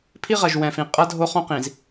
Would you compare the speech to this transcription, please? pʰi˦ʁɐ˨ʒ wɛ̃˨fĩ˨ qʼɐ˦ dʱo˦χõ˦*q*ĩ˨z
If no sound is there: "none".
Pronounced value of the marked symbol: q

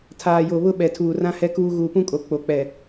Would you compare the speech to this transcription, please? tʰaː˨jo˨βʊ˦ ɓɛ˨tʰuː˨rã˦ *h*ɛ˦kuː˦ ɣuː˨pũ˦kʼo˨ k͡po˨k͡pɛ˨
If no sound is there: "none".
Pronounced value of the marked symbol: h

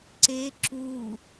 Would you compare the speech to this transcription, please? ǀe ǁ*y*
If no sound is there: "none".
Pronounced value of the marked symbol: u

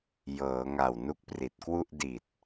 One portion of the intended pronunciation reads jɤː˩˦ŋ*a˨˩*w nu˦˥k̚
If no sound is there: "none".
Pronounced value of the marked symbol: a˨˩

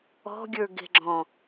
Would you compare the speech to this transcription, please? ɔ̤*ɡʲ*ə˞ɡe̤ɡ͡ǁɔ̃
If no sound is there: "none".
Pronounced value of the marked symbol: ɡʲ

